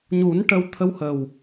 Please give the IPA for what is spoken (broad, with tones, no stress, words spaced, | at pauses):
ɲu˨˩˦nʈə˧w t̪ʰə˧whə˨˩w